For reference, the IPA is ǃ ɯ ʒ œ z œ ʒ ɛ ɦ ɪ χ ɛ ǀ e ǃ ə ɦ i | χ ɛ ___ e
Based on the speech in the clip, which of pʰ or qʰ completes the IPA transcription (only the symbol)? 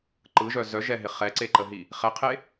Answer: qʰ